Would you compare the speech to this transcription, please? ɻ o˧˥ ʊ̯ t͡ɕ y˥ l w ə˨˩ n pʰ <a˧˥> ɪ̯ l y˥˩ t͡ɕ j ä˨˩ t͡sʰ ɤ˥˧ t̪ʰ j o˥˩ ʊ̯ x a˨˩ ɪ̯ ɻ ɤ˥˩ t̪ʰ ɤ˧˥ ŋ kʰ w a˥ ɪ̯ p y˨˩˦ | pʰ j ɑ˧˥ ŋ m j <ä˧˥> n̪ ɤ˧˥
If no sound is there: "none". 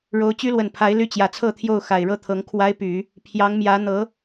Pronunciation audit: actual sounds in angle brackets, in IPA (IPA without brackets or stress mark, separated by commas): a˧˥, ä˧˥